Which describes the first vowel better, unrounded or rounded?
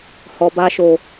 rounded